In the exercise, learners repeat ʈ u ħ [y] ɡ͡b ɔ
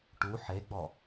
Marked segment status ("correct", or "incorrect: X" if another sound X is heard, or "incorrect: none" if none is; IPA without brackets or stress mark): incorrect: e